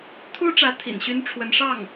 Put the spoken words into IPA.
t̪ʰu˥ʈ͡ʂä˧˥ t̪ʰḭ˨˩nɕy˥nʈ͡ʂʰwə˧˥nʂɑ˥˩ŋ

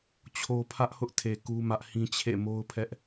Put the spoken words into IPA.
t͡ɕʰo˦ pʰä˦ʔhʊ˦ʔtʰe˨ ku˦mä˦ʔhĩ˦ t͡ɕʰḛ˦˨mo˦ʊ̯pʰɛ˦ʔ

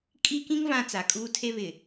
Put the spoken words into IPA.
kʼi˦kĩ˦ŋ vã˦t͡sa˨ kʼuː˦tʰe˦ βɪ˨

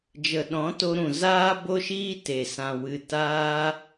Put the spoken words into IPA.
d͡ʒə˨ɗɔ̃˨˦to˧ ɾũ˨zaː˦bo˦ʃiː˦ te˨sã˨ wɨ˧ taː˦

